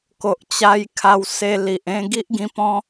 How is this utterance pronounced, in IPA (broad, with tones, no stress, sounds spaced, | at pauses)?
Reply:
k o˨ ʔ t͡ɕ a˧ j kʰ a˧ w s e˧ l i˨ ʔ ẽ˥˧ ɡ i˦ ʔ ɡ ĩ˧ p ɔ̃˦